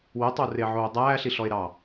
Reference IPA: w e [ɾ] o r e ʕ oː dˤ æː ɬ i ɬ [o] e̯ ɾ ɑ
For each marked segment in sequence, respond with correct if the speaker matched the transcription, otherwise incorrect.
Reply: incorrect, incorrect

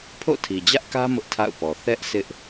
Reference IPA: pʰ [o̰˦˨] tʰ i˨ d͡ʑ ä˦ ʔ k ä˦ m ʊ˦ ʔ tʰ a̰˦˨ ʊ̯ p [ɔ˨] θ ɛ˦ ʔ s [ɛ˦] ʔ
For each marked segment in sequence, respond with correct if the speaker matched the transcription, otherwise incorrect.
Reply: correct, correct, incorrect

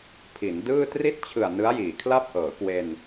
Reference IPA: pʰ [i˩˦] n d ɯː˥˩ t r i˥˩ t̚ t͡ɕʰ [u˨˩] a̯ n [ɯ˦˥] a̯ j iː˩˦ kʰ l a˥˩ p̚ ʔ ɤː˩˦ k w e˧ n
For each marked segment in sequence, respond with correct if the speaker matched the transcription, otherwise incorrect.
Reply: correct, incorrect, correct

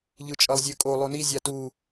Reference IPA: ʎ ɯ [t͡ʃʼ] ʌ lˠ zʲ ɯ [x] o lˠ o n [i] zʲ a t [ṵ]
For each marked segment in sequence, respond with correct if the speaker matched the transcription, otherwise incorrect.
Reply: correct, incorrect, correct, incorrect

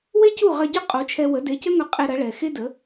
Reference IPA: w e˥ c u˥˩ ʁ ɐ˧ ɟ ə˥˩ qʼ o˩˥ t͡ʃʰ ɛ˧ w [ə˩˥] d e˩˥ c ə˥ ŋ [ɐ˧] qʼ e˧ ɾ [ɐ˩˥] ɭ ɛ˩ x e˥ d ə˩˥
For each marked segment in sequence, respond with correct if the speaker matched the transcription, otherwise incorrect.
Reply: correct, correct, correct

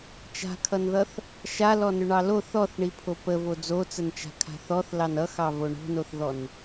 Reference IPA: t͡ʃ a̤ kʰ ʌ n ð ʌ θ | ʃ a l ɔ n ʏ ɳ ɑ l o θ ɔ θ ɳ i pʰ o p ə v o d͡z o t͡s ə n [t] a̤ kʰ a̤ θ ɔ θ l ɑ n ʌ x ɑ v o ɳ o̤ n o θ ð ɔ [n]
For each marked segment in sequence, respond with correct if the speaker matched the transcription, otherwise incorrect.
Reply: incorrect, correct

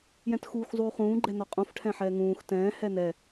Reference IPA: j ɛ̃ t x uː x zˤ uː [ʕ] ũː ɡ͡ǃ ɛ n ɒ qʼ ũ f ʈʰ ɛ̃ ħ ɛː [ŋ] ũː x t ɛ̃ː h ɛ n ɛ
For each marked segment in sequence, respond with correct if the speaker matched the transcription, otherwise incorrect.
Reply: incorrect, correct

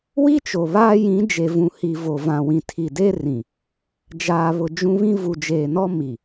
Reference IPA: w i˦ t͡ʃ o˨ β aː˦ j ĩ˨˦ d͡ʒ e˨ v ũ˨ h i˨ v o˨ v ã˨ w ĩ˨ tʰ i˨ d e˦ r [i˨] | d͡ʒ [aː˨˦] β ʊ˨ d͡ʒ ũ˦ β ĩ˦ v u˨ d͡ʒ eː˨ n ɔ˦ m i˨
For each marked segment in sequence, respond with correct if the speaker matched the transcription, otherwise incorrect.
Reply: incorrect, incorrect

